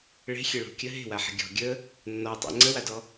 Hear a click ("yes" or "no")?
yes